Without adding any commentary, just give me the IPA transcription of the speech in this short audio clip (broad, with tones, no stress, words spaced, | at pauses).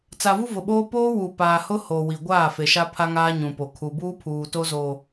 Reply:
t͡sa˨vu˦vʊ˨ɓoː˦ poː˦wu˨paː˨ hʊ˦ ho˨ wi˨ ɡʷaː˦˨ fe˨ʃa˦pʰa˦ŋaː˦ ɲũ˨po˨ kʰu˨buː˦pʰuː˨ to˦zoː˨